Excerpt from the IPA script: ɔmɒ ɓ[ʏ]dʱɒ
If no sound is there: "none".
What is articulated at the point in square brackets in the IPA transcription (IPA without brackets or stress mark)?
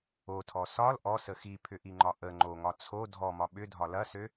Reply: ʏ